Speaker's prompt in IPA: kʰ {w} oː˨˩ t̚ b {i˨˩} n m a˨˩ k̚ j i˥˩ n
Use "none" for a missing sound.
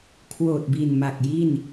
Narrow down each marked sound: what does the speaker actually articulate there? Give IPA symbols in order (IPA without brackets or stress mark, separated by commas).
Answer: w, i˨˩